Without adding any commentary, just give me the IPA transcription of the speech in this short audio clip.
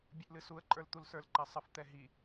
bʲ ɨ ʔ l ɨ s u ə̯ ǃʼ ə˞ l t̪ u l s ə˞ l ǃ ɛ sˤ ə f t̪ ɛ ɦ i

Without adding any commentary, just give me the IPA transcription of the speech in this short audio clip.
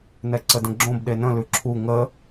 n ɛ ǀ ə d ə̃ ɡ͡ǁ õ b ɗ e n ə̃ l ʉ ǁʰ u ŋ ə

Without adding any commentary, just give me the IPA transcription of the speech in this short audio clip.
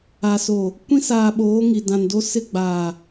a˨ s o˨ | kʷ ĩ˦ s aː˨ ɓ oː˨˦ ŋ i˨ d ã˨ n d o˦ s ɪ˦˨ ɡ͡b aː˨

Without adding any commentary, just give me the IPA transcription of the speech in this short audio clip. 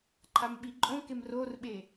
ǃʰ a m ɓ i ǃʼ õ k e m r o r ɓ e

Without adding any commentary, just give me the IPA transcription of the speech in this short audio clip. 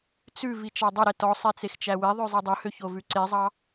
t͡s ʉ v i t͡ʃ ɑ dˤ ɵ ɾ ɛ t ɔ sˤ ɛ t͡s e x t͡ʃ æ w e ðˤ ø zˤ i dˤ ɵ h ø ç o v ʉ ǀ e zˤ ɑ

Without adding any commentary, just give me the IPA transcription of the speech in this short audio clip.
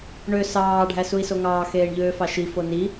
ɳ ø s ɑː ɖʱ æ s u i̯ s o ŋ ɑː x eː ɳ ʎ øː f ɑ ʃ i f o n i

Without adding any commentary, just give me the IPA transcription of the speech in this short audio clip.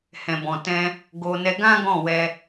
h ɛ̃˨ b ɔ̃˨ t ɛ̃˧ | ɡ o˧ n ɛ˧ ɡ ã˦ ɡ ɔ̃˦˨ w ɛ˧

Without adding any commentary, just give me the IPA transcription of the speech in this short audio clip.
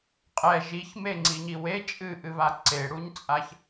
qʼ ɛ ʒ i ç m e ŋ͡ǀ i ɲ i w e t͡ʃʼ ɨ ʔ ɨ β a ǀ e ɽ u ɲ t͡sʼ a ç

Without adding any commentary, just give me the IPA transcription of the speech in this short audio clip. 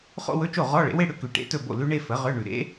χ o̰˥˧ w ɵ˧˥˧ t͡ʃ o˥˩ ʁ ɔ˧˥˧ ɭ ḛ˩˥ w e˥˧ ɽ ʏ˥˧ k ʉ˨ ʈ ḛ˧˥˧ t ɵ˥˩ b o̰˥˩ l ʉ˧˥ ɳ e˥˧ f ə˩˥ ʁ ʏ˧˥˧ ɳ ʉ˨ ɾ ḛ˧˥

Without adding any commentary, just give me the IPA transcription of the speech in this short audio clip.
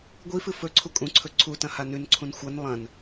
ɡʷ i f ɨ f ɵ ǀʰ u kʼ ũ ǀʰ ɵ ǀʰ u t ɐ̃ h a n ʉ n ǀʰ ũ n xʷ ɐ n lˠ ɐ̃ n

